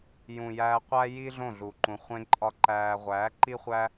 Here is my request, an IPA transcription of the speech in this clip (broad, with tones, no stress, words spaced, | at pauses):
jũ˨jæː˧ qʷæ˦ji˦ ɮõ˦˨ɮu˨ǃũ˨ χʷẽ˦ǃʼɒ˦ǃæː˧ ʁʷæː˨˦ǃi˦χʷæ˦